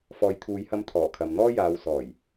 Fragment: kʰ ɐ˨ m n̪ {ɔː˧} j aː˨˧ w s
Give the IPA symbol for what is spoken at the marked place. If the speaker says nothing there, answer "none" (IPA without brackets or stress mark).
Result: ɔː˥